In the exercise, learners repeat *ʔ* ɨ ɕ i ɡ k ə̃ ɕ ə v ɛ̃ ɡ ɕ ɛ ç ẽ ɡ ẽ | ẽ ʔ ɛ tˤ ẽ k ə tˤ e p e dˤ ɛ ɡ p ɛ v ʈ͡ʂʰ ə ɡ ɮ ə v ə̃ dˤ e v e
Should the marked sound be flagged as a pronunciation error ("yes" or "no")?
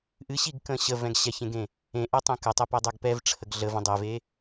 no